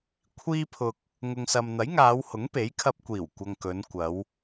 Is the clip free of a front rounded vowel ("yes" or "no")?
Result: yes